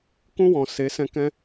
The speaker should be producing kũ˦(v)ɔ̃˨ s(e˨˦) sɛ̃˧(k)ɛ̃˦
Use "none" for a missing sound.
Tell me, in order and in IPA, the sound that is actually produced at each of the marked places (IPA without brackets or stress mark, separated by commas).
w, e˨˦, k